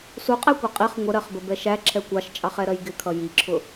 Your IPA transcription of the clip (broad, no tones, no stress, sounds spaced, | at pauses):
s u qʼ æ kʷ ɛ qʼ ɪ χ ŋʷ ə ɾ ɜ χ b ə b ɛ ʃ æ ǁʰ ɛ kʷ ɑ ʃ t͡ʃʼ ɑ χ ɛ ɾ ɜ j ɡ ɪ kʰ ʌ j i ǁʰ ʊ